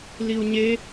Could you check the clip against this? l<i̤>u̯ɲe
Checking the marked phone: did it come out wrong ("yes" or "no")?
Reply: yes